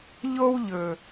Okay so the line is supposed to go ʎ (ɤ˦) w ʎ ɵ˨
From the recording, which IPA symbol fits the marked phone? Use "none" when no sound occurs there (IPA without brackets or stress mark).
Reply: o˦